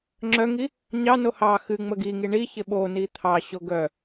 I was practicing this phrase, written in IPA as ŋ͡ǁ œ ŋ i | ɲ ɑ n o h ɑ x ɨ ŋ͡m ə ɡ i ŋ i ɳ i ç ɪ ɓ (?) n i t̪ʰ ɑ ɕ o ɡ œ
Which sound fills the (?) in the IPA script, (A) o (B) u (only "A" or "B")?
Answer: A